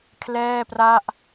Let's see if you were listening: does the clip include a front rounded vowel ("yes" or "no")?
no